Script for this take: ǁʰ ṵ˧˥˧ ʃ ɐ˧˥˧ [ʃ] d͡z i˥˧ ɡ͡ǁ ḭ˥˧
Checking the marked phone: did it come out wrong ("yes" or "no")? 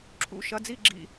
yes